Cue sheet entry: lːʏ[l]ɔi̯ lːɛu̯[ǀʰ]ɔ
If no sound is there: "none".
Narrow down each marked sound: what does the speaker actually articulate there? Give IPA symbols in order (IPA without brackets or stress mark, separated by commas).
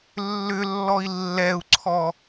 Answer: lː, ǀʰ